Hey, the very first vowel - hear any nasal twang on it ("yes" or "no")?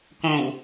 yes